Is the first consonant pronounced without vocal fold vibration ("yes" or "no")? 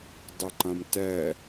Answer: no